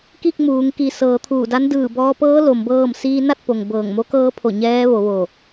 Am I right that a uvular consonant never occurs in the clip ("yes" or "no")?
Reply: yes